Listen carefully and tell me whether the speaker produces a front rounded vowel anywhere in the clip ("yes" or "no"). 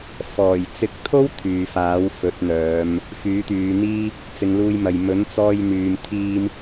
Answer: yes